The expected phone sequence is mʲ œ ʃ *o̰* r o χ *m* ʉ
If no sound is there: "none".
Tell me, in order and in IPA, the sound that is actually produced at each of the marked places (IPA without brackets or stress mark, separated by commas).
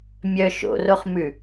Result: o̰, m